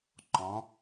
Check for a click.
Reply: present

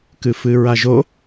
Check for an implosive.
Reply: absent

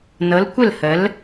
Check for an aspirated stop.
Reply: absent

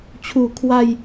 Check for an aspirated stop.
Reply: present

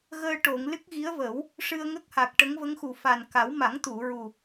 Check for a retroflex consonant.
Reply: present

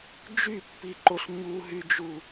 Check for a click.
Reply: present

